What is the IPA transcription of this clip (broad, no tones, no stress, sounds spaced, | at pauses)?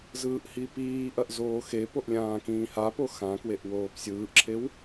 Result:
z ɯː ʔ h i p iː ʔ ɐ ʔ z oː x e p o ʔ lʲ ãː k ĩː h a p o x ã k w e ʔ w oː p sʲ ɯː ʔ ǁʰ e w